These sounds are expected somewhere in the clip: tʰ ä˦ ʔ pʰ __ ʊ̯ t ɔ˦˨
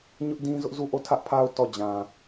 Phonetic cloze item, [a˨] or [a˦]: a˦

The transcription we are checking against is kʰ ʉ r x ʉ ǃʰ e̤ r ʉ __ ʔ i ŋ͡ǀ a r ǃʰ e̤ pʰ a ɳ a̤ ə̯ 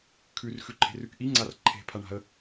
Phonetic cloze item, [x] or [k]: k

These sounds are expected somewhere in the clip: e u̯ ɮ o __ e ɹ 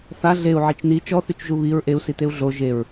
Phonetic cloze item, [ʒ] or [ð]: ʒ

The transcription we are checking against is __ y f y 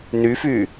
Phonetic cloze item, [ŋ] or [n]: n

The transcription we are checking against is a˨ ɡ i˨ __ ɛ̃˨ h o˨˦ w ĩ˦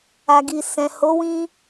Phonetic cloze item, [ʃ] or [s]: s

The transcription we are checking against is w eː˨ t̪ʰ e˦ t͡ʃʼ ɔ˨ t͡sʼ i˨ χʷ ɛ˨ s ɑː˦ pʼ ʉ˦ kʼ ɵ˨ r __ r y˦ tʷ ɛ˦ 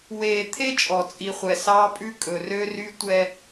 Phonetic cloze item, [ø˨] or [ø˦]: ø˦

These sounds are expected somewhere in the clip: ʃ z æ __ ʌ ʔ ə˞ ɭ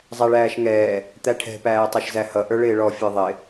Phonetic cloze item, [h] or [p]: h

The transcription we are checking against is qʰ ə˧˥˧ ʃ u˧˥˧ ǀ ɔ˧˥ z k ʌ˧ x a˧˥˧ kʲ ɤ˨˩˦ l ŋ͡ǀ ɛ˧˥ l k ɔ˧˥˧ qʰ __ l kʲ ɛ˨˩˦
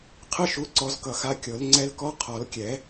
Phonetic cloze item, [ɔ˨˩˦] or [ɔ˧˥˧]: ɔ˨˩˦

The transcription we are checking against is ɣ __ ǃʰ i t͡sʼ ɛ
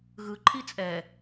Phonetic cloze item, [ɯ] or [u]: ɯ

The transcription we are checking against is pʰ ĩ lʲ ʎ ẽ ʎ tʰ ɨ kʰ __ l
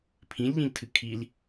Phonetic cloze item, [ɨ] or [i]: i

